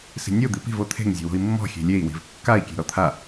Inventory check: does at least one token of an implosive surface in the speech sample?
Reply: no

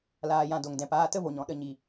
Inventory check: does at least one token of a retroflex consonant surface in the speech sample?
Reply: no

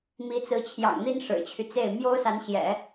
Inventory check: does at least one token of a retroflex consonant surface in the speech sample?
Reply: yes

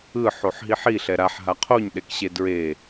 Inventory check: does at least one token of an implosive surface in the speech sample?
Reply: yes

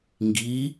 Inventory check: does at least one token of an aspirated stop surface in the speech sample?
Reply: no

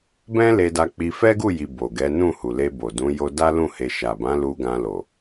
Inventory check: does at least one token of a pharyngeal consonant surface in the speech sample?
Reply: no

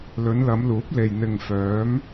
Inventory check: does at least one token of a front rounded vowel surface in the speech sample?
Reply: yes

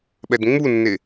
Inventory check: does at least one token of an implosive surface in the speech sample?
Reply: yes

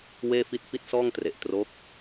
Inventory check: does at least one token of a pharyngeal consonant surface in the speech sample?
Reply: no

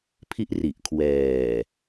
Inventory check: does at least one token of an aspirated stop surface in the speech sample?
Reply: yes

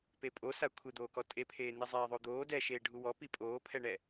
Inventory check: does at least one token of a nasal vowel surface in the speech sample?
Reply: no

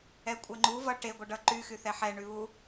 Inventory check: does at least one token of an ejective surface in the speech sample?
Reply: yes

